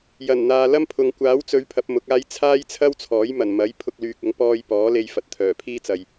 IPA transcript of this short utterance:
j ɐ˨˩ n n̪ aː˨ l ɐ˥ m pʰ ʊ˨ ŋ kʷ aː˨˥ w t͡s ɵ˨˧ ɥ pʰ ɐ˨˥ p̚ m ʊ˨˥ k̚ aː˥ j t͡sʰ aː˥ j t͡sʰ ɐ˥ w t͡sʰ ɔː˨˥ j m ɐ˨˩ n m ɐ˨˥ j pʰ ʊ˧ k̚ l yː˨ k̚ ʊ˨˧ ŋ p ɔː˧ j p ɔː˨˥ l e˧ j f ɐ˨ t̚ t̪ʰ œː˨˩ pʰ iː˥ t͡s ɐ˨ j

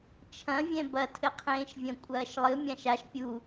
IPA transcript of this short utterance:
t͡ʃʰ ɐ̃ vʲ ɛ̃ b ɐ tʰ ɘ qʰ ẽː ʃ vʲ ɐ̃ kʷʼ ɐː ʃ lˠ ɨ mʲ ã ʃ a ʃ pʲ u

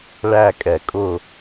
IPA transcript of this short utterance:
ɭ æ˦˨ kʼ ɛ˨˩˦ kʼ ʊ˦˨

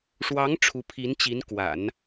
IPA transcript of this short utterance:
ʂ w ɑ˧˥ ŋ ʈ͡ʂʰ u˧˥ pʰ i˧˥ n t͡ɕ i˧˥ n k w a̰˨˩˦ n

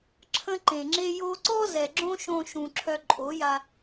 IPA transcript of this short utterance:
ǁʰ ə̃˧ ǃ ẽ˨ ŋ͡ǁ e˦ j o˧ ǀ ɔ˦ z ɛ˨ ɡ͡ǁ õ˦ ʃ õ˧ ʃ ũ˨ ǁʰ œ˧ ǃʼ o˨˦ j a˧

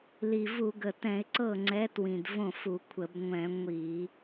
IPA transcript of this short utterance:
l i˨˩ v u˧˩˧ ɡ ə˨˩ t ɛ̃˧˩˧ ɪ̯ ǀ ɤ˥˩ ŋ͡ǀ ɛ˨˥ t w ĩ˨˩ d v õ˥˩ f u˧˩˧ kʷʰ ə˧˩˧ b ŋʷ ɛ̃˧˩˧ ŋʷ i˧˩˧

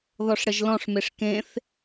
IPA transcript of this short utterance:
ð ɔ ʂ ɽ ə ʒ l ɔ̃ ʂ m e ʂ k ẽ θ

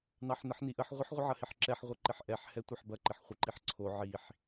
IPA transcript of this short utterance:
n ɑ ħ n ə ħ n i ʔ ə ħ ʁʷ ə ħ ʁʷ ə ʕ ɐ h ɪ ħ ǁ ɛ ħ ʁʷ ɐ ǃ ɪ ħ ʔ ɛ ħ h ɛ tʷ ɐ ħ b ɐ ǃ ɪ ħ χʷ ɪ ǃ i ħ ǀʰ o ʕ i ħ

